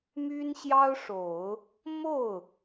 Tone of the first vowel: high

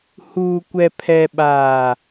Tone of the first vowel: low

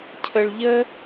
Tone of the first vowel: low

